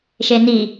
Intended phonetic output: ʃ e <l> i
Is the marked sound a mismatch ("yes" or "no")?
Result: yes